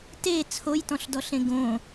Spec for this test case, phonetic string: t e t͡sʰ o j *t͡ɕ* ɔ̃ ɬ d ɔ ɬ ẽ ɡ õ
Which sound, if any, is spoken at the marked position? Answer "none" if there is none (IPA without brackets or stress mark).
t